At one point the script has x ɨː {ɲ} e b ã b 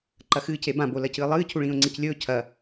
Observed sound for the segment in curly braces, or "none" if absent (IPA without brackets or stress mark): c